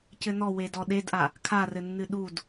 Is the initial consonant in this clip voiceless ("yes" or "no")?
yes